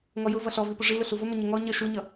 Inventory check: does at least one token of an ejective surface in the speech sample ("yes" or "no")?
no